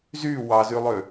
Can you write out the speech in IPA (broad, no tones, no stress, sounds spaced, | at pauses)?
z y w ɑ z y lˠ ø